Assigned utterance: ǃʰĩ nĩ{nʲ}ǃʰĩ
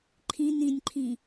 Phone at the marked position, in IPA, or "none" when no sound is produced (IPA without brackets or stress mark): nʲ